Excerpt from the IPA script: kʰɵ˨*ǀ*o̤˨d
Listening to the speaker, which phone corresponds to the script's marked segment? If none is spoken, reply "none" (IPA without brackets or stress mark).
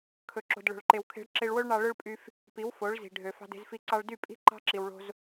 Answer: ǁ